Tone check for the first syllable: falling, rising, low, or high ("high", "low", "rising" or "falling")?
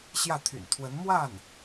falling